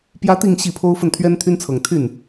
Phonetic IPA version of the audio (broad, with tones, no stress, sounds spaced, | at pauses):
p j ä˥ t̪ i˥˧ ŋ ɕ i˥˩ pʰ o˥ ʊ̯ f ə˥˩ n t̪ʰ ɥ ɛ˥ n t̪ʰ y˥ n t͡sʰ ɤ˨˩ ŋ t̪ʰ y˥˩ n